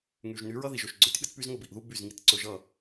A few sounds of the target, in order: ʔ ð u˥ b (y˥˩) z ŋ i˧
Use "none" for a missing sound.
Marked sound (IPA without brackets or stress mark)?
y˥˩